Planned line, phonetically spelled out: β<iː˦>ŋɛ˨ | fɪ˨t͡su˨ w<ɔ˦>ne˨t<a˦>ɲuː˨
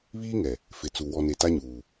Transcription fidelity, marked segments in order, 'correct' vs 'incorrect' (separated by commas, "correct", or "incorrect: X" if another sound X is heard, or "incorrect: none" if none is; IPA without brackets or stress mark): correct, incorrect: ɔ˨, correct